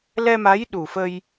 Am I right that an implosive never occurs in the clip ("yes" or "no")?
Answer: no